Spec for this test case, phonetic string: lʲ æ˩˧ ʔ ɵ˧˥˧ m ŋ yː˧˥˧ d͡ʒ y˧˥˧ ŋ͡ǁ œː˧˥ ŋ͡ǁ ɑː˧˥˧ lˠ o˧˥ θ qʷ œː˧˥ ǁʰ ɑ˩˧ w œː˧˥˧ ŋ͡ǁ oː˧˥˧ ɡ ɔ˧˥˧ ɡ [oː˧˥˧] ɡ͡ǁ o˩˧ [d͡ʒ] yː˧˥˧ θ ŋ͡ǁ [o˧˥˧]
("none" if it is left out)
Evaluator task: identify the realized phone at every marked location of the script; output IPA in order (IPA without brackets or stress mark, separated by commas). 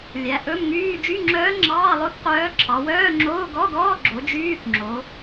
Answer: ɔː˧˥˧, d͡ʒ, o˩˧